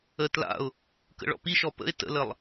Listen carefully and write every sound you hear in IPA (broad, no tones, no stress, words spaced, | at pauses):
ə tla̰ʊ̯ | kə̰ɭɔ̰piʃɔ pə̰ɪ̯ tə̰ləlˠ